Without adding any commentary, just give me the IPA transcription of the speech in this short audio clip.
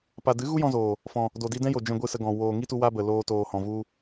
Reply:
p a˨ d ɨ˨˦ ɣ u˦ j ɔ̃˧ z oː˨ | f ɔ̃˨ | d o˨ d i˧ d ɛ̃˦ j o˨ d͡ʒ ɛ̃˧ ɡʷ ɨ˦˨ s ə˧ ɡ ɔ̃˨ w oː˨ ŋ i˦ t u˧ w a˦ b ə˨ l oː˧ t oː˨ h ɔ̃˨ v u˦

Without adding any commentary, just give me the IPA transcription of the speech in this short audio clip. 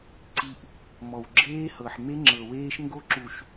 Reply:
ǀ i˨ ʔ | m ɔ˨ w ɡ͡ǁ eː˦ h ɤ˨ ħ m e˦ ŋ͡ǁ ɤ˨ w eː˦ ʃ ŋ ɡ o˦ ǁ u˨ ʃ

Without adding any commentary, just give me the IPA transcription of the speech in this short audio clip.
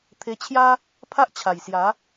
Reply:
t̪ʰ e˧ t͡ɕʰ j a˦ | pʰ a˦ ʔ t͡ɕʰ a˨˩ j s j a˨˦

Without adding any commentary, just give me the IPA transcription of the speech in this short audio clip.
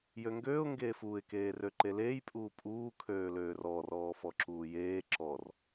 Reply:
j ø ŋ ɡ øː ʊ̯ ŋ ɡ eː f uː ɪ̯ k eː r ø ǃ e l eː j pʼ uː pʼ uː kʰ øː l øː r ɔ r ɔː f ɔ ǁ uː j eː ǁ ɔ r

